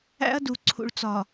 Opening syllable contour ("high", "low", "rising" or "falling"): high